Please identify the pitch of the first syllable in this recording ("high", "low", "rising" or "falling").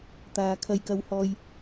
high